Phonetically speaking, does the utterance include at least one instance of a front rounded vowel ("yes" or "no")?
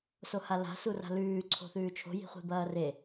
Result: no